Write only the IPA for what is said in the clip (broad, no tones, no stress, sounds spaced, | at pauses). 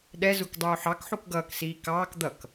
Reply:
ɗ ɛ z u k dˤ uː ħ ɑ k ħ u k ɡ ʌː k s iː k ɑː k d̪ ʌ k